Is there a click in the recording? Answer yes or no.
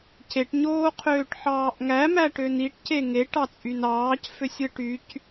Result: no